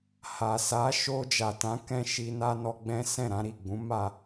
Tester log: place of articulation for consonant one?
glottal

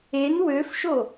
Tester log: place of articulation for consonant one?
alveolar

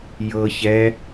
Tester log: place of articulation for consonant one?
palatal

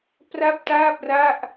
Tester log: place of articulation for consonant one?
labial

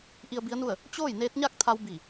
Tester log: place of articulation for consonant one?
glottal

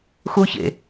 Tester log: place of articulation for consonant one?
velar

